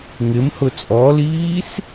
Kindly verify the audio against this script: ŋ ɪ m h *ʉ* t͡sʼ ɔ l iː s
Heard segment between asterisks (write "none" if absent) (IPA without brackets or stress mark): ʊ